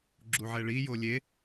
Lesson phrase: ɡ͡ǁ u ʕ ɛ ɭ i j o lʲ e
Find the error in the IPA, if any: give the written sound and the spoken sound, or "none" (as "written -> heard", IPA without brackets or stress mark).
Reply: none